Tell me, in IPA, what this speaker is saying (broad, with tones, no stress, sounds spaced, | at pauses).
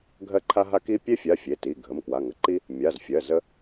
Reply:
ɡʱ ɜ˦ ǃʰ a˦ ɦ a˦ k i˦ pʲ e˦ fʲ a˩˧˩ fʲ e˩˧˩ t i˩˧˩ ɡʱ ə˩˧˩ m k w a˩˧˩ ŋ ə˩˧˩ ǃ i˦ | mʲ a˩˧˩ z fʲ ɜ˩˧˩ z ə˦